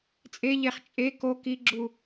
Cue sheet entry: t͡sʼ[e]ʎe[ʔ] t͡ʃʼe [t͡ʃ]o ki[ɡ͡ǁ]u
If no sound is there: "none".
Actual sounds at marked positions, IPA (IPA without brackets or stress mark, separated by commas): e, χ, k, ɡ͡ǁ